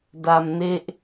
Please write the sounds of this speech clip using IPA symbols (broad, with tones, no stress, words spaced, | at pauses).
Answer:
da˧mne˥˩ʔ